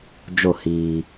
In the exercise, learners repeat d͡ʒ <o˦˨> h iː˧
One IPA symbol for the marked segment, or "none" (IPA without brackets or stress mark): o˦˨